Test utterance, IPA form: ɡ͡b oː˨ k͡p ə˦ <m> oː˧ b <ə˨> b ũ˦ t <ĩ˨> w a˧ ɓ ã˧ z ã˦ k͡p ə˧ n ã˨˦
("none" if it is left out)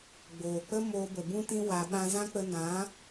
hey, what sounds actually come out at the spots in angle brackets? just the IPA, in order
m, ə˨, ĩ˦

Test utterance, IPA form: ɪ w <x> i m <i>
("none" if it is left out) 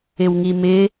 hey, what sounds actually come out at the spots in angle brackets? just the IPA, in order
ŋ, ɪ

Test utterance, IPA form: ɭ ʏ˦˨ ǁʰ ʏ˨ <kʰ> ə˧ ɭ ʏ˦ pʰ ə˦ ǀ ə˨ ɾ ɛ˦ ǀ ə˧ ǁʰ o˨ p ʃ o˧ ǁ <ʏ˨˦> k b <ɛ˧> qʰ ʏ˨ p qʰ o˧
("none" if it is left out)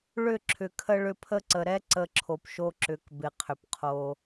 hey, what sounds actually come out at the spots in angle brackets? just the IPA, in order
kʰ, ʏ˨˦, ɪ˧

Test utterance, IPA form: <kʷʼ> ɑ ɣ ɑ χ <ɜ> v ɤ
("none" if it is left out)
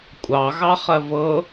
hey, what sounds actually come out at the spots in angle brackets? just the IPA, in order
kʷʼ, ɜ

